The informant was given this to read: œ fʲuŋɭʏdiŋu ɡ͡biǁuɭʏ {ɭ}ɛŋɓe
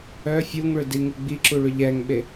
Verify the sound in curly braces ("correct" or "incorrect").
incorrect